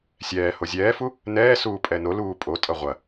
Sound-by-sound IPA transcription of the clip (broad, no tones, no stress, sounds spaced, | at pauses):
sʲ ɛː h o zʲ ɛː f u | n ɛː s uː pʼ ɛ n o l uː pʼ o tʼ ʌ ʁʷ ɐ